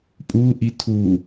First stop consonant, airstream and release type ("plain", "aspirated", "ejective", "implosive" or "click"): ejective